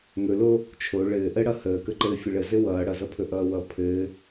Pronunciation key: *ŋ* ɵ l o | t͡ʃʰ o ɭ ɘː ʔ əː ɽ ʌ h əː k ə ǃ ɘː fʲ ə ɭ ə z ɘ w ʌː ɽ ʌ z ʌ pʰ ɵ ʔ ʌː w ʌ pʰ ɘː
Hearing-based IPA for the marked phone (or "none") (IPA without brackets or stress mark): ŋ